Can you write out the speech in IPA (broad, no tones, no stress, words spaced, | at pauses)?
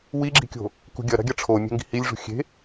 wiɡ͡ǁi̤kʲo̤ | kṳɡʲɐ ɾa̤ɡʲɐʈ͡ʂʰo mʲe̤ŋɡi̤hilʲ ʐṳxʲe̤